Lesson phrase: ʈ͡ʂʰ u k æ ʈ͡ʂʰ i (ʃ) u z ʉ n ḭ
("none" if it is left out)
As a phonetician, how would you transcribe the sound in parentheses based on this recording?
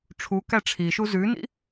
ʃ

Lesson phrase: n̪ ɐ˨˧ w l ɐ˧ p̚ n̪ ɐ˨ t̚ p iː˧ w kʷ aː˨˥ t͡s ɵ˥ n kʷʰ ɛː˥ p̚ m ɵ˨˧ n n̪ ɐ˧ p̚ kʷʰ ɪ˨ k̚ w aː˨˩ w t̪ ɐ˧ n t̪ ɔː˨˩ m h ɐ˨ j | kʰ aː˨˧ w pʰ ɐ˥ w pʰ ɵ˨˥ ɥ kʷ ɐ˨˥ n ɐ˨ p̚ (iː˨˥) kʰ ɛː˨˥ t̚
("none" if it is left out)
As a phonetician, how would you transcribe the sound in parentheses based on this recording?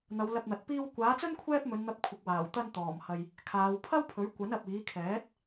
iː˨˥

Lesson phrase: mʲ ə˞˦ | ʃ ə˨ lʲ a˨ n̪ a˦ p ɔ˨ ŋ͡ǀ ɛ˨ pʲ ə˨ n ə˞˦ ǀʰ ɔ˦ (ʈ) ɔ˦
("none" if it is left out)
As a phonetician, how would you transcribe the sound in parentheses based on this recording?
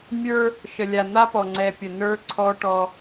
ʈ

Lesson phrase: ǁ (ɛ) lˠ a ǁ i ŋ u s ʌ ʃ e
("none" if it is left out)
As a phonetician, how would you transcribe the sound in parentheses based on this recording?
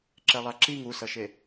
ɛ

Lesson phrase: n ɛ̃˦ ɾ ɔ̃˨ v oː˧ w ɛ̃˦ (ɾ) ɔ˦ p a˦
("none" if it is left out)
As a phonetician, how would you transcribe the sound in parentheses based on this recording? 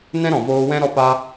ɾ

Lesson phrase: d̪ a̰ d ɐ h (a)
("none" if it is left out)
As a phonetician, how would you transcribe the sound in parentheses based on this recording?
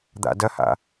a̰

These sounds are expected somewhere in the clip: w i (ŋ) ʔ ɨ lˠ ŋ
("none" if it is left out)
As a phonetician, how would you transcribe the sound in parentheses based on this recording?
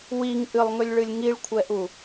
ŋ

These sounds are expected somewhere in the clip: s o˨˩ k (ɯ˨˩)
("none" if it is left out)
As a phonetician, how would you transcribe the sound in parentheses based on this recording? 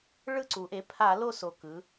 ɯ˩˧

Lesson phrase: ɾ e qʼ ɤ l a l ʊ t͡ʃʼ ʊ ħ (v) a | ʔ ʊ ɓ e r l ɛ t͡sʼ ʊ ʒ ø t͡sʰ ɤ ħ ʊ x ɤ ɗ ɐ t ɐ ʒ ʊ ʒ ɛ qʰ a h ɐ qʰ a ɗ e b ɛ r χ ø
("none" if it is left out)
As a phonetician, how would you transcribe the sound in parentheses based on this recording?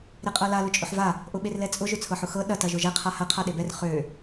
v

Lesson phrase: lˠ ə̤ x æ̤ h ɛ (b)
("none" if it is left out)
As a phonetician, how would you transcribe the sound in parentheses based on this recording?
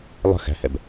b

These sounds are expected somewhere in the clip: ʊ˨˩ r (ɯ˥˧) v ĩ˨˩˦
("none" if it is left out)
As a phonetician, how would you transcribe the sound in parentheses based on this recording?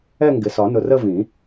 ə˥˧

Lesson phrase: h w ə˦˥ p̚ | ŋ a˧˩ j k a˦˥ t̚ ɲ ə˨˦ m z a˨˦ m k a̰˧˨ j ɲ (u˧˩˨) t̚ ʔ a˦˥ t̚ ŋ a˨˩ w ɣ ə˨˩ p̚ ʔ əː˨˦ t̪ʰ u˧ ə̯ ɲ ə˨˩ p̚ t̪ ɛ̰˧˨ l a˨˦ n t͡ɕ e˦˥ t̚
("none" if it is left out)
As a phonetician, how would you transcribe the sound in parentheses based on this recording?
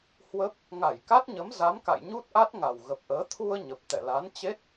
u˦˥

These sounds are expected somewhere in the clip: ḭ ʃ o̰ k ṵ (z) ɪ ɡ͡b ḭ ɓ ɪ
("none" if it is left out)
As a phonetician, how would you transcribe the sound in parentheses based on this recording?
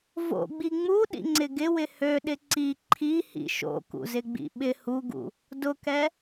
z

